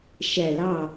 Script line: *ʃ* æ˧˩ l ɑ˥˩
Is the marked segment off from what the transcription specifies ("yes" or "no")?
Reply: no